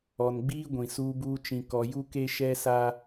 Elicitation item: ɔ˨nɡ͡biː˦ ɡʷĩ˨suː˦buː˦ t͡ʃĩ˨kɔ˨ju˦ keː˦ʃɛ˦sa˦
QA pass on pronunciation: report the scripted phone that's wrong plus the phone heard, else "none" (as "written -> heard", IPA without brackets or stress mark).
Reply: eː˦ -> e˦